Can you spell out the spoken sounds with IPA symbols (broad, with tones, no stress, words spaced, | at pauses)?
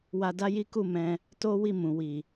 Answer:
wa˧da˦ji˦ ku˦˨mɛ̃˧ | to˦wi˦˨ mũ˨ wi˨